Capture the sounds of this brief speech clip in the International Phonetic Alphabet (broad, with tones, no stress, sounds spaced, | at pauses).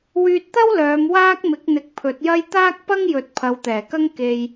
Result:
w yː˧ t̚ t̪ ɐ˥ w l œː˨˧ m w aː˥ k̚ m ɪ˨˥ k̚ n̪ ɪ˨˥ k̚ pʰ ɵ˨˥ t̚ j ɐ˥ j t̪ aː˥ k̚ p ɐ˥ ŋ j ɵ˨ t̚ pʰ ɐ˨˧ w t̪ ɛː˨˩ k ɐ˥ ŋ k e˧ j